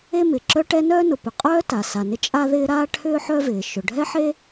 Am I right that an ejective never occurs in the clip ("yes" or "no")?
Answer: no